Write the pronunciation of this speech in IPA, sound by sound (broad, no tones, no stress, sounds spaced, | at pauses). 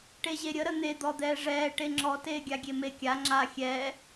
ʈ e ʑ e ɾʲ ə ɾ ə n̪ e d̪ ɔ d̪ ɛː ʐ ɛː ʈ e ŋ͡ǁ ɔ t eː ɡʲ a ɡʲ e m e kʲ a ŋ͡ǁ a xʲ ɛː